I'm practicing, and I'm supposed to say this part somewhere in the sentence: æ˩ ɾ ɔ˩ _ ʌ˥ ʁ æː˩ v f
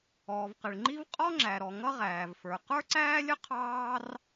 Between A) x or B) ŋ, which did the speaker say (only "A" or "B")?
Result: B